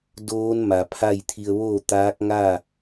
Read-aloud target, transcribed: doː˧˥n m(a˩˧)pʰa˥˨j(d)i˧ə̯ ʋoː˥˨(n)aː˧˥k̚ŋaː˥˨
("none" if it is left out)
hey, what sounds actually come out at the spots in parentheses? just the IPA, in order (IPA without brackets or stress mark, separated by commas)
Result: a˩, t̪ʰ, t̪